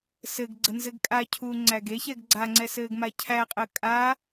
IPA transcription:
sɘɡɡ͡ǀə nzɘɡkʼacʰuː ŋ͡ǀæɡeçɛɡ ɡ͡ǀaŋ͡ǀɛ sɘːɡmacʰæqʼəː kʼa

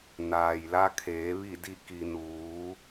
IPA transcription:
naː˩jla˧kʰeː˩˧ ʋi˧˩di˧˩ ki˩ nuː˩˧

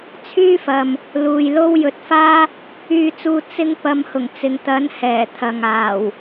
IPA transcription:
t͡sʰyː˥fɐ˨m | luː˨jlo˥w jɵ˨˥t̚faː˥ | yː˧t͡suː˧ t͡sɪ˥ŋpɐ˧m hʊ˨˩ŋ t͡sɪ˨ŋt̪ɐ˨˥n hɛː˨˩t̪ʰɐ˨ŋaː˨˩w

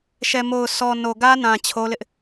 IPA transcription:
ʃɛ˨mo˨ʊ̯ sɔ˨ no˨ɡä˦nã˨ t͡ɕʰo˦lɪ˦ʔ

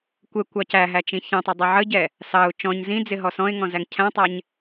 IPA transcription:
kʷɛkʷ ɑcæɦæ t͡ʃĩçɛ̃tˤɪ dˤɛʕəɟɛ | sɑʊ̯ t͡ʃɔ̃ɲ zĩ d͡zɪɦɔsɔ̃ɪ̯ŋɔ̃ zæŋcʰæ̃tˤæɲ

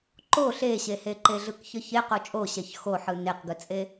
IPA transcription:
ǃo ɬeɕehe ǃeɮɯkçəçe qot͡ʃʼo ɕɛçxoħɯ neqɡɯt͡sʼe

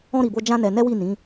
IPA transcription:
ɔ̃˦ ɾi˧bo˦ d͡ʒã˦nɛ˧ nɛ˦wi˦˨nĩ˨˦

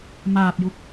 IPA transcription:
maː˨˩p̚ju˨˩k̚

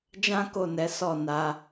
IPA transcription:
d͡ʒã˦ko˦˨nɛ˨˦ sɔ˦˨na˧

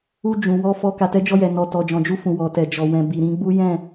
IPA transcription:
u˧d͡ʒũ˨ wɔ˧ fɔ˧ ka˨tɛ˨˦d͡ʒɔ˧jɛ˨ nɔ˨tɔ˨ d͡ʒɔ̃˨d͡ʒu˧fũ˨ wɔ˨tɛ˨ d͡ʒɔ˨wɛ̃˨ bi˨ɾĩ˨˦ɡ͡bu˦ jɛ̃˦˨

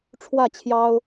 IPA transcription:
ʈ͡ʂʰwä˥˨t͡ɕʰjɑ˦ʊ̯

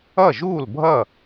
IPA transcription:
ʌ˥˩ʒuː˥˩lbʱʌ˥˩

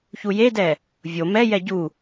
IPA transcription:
çujedɛ | vʲo mɛjɛ ɟu

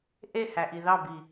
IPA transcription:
ʔehæʔi ðɑbi

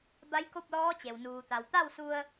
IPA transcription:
ba˧˥jko˥˨p̚lɔː˧˥t͡ɕe˩w nuː˩t̪a˩w t̪a˥˨wsu˧ə̯

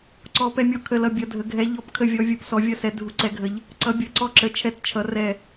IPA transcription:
ǀɔ˨˦pɛ˦˨mʲɔ˦˨ kʰə˦˨lʌ˦˨ bʲʌ˨˦dʱə˨˦ ɡʱɛ˨˦ ʎɔ˦˨p kʰə˦˨vʲɔ˨˦ vʲu˨˦psɔ˨˦vʲʌ˦˨sɛ˨˦ dʱu˨˦ǀɛ˨˦ɡʱə˨˦ʎ | ǀʌ˨˦bʲʌ˨˦ ǀɔ˦˨ǁə˨˦ t͡ʃʰɛ˦˨tt͡ʃʰʌ˨˦rɛ˦˨

